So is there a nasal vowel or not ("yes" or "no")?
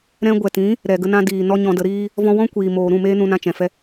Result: yes